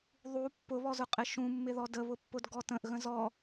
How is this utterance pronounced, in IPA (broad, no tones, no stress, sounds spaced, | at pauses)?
ðˤ u pː ʊ β ɔ z ʊ qʼ ɪ ʃ ũ mː ɪ ð ɔ d ə β ʊ pː ʊ d ɡ ɔ t ə̃ ʔ ɣ ə̃ z ɔ